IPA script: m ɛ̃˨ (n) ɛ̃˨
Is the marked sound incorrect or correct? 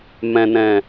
correct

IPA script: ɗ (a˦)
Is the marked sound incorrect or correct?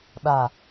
incorrect: a˨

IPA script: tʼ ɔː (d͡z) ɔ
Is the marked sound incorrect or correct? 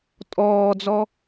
correct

